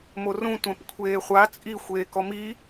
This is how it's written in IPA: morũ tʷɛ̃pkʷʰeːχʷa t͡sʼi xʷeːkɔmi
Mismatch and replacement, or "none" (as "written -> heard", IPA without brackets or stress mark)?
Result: none